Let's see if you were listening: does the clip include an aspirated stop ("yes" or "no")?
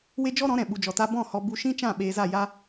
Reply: no